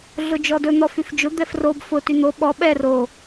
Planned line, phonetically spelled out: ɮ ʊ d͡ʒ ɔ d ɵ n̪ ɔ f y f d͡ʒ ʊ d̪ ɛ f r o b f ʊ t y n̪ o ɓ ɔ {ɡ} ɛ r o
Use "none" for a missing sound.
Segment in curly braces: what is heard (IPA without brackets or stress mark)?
ɓ